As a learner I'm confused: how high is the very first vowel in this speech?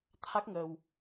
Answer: low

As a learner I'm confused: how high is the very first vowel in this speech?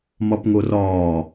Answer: low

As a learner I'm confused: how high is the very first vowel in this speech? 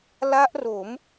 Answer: low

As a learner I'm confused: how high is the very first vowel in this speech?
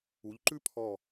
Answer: high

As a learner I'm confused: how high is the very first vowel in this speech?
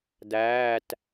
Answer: low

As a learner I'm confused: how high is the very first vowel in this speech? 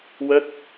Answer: mid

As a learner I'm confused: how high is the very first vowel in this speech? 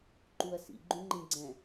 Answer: high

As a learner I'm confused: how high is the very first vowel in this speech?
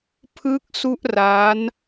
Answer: high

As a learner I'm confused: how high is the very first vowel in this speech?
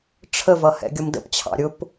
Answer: mid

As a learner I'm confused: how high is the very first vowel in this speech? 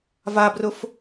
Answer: low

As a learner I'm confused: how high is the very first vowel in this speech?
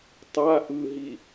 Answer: low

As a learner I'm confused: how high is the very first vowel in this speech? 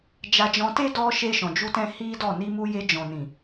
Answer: low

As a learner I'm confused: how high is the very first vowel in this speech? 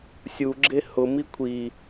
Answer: high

